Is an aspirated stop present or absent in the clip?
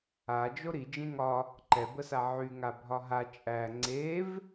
absent